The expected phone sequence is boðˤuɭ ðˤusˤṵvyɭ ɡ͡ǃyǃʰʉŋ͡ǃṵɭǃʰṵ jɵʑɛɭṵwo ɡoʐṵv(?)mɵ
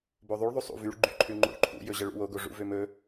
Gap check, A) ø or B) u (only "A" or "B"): A